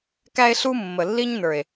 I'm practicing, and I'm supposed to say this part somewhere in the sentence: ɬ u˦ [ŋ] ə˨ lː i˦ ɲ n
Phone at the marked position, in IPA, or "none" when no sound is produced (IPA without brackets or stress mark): mː